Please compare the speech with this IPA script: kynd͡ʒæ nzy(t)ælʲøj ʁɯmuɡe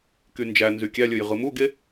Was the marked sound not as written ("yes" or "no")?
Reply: yes